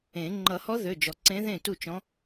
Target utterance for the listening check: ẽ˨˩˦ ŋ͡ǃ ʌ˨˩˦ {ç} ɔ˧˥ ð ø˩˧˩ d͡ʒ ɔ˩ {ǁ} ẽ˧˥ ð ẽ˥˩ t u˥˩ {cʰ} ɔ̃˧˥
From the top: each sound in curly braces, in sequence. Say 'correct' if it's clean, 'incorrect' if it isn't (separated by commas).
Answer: incorrect, incorrect, incorrect